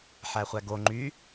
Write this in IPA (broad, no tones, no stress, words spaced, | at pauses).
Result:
ħæχʷæɡo ŋ͡ǃy